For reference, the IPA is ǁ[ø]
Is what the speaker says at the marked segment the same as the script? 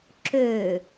yes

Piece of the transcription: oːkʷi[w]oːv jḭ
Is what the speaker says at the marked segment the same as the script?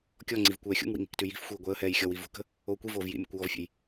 no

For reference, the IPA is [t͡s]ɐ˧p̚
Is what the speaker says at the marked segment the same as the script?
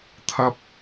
no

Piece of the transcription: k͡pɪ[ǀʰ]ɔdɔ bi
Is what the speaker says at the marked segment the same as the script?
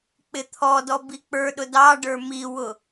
no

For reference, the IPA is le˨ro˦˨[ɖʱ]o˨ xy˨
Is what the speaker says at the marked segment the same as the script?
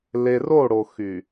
no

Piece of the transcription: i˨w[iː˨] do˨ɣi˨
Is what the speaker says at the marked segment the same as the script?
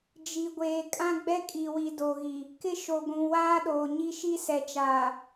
no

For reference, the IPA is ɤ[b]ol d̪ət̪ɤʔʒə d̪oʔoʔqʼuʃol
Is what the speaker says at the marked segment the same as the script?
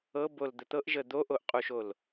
yes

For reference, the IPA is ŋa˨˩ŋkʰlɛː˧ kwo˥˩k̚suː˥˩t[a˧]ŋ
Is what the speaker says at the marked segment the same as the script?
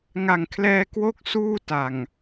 no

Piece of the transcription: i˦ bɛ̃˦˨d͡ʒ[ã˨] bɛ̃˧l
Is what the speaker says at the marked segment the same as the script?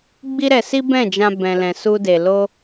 no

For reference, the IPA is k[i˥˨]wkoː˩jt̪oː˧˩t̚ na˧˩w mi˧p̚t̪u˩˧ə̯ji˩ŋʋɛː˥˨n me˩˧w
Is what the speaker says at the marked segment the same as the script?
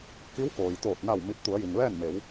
no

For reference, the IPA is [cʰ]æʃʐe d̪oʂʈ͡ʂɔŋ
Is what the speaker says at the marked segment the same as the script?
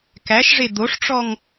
no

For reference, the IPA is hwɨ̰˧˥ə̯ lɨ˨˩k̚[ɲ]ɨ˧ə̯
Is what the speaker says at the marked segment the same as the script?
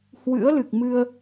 no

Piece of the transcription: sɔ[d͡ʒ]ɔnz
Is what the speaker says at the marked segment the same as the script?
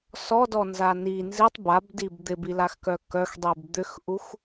no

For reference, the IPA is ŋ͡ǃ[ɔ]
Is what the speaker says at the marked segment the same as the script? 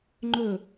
no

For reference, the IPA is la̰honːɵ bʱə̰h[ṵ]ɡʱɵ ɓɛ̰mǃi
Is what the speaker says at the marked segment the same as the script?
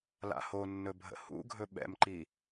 yes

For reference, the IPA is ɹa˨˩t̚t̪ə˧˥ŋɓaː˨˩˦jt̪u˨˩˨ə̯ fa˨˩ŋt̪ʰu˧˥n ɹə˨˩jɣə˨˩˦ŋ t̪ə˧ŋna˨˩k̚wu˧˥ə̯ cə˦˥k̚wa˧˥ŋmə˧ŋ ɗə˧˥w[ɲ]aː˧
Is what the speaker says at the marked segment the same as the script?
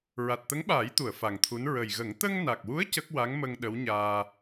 yes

